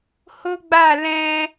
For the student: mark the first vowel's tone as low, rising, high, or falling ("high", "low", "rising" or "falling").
high